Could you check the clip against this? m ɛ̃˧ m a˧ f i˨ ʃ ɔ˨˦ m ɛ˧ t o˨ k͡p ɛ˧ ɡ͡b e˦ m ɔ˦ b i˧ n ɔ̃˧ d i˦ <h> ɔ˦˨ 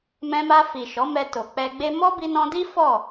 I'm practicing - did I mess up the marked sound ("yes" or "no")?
yes